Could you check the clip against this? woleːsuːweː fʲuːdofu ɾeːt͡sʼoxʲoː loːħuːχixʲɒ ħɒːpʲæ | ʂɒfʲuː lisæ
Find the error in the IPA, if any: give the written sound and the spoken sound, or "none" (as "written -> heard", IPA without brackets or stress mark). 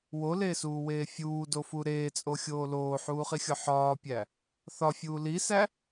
ʂ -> θ